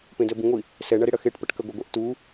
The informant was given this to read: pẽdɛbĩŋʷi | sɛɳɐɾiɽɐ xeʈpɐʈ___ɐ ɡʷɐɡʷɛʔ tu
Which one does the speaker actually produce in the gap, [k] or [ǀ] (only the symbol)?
k